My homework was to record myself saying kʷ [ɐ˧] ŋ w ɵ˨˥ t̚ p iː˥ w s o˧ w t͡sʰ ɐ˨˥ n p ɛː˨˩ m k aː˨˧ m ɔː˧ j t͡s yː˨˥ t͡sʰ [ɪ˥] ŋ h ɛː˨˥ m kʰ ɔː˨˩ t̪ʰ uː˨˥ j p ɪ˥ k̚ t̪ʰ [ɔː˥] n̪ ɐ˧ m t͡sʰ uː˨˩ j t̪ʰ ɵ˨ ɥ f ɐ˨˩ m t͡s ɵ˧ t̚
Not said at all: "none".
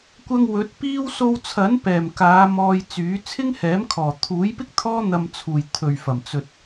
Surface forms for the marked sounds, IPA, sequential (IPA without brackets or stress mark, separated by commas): ɐ˧, ɪ˥, ɔː˥